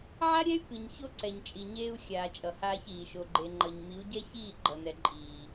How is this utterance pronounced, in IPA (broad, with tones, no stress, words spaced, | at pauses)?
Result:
ʕa˦ɾʲɛ˦y̯ kɯ˨ɲ ço˦ǀɛ˨ɲt͡ʃʼi˨ɲeː˦u̯ xʲaː˨ t͡ʃʼʌ˨haː˦çiː˨ ʃo˨ɡ͡ǃe˨ŋ͡ǃʌ˨ɲ mi˨˦u̯ɟɛ˦çiː˦˨ ɡ͡ǃʌ˨nɛ˨ ǃʼiː˨